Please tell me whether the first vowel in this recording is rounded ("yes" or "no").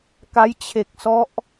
no